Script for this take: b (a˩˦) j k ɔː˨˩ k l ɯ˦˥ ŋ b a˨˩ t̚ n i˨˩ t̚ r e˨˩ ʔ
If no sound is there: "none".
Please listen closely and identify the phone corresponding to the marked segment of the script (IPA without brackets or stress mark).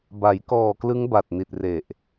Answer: a˩˦